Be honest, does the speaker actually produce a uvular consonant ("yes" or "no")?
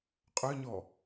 yes